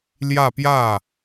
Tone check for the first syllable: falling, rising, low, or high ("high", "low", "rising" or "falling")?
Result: falling